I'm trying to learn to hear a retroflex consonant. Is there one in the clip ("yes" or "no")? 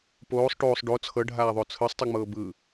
yes